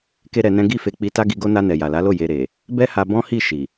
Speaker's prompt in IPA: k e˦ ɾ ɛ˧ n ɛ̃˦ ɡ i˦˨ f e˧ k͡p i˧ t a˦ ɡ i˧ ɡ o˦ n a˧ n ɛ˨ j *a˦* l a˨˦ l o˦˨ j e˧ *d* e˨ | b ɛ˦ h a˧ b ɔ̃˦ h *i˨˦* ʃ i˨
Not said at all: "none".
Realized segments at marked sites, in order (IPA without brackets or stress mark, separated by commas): a˨, ɾ, i˦˨